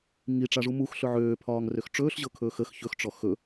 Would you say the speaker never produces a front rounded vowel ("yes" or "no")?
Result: no